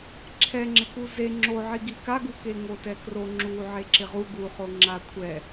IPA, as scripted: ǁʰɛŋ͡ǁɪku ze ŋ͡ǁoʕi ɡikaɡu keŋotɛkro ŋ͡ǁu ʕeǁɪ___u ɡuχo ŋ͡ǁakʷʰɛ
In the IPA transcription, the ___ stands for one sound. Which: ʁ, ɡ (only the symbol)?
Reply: ʁ